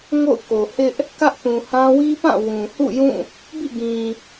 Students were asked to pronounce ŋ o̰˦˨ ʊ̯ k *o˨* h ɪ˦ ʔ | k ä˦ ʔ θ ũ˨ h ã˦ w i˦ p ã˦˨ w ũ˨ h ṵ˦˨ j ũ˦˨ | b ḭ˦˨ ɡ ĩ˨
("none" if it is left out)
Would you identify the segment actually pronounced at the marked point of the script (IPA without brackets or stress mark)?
o˨